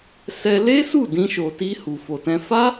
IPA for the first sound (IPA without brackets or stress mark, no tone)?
s